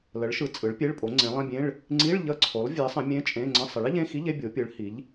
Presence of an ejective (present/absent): present